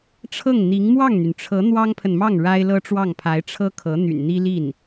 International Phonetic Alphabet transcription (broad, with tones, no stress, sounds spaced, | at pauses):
ʈ͡ʂʰ ɤ˥˩ ŋ n̪ i˧˥ ŋ m w ɑ˥˩ ŋ n̪ y˩ n ʈ͡ʂʰ ɤ˧˥ n̪ w ɑ˥ ŋ pʰ ə˨ n m ɑ˥˩ ŋ ɻ a˥ ɪ̯ l ɤ˥ ʈ͡ʂ w ɑ˥˩ ŋ pʰ a˧˥ ɪ̯ ʈ͡ʂʰ ɤ˥ kʰ ɤ˧˥ n̪ y̰˨˩ n n̪ i˥ l i˥˩ n